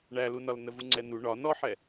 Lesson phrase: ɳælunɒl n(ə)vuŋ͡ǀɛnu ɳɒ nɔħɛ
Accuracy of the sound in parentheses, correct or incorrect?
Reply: correct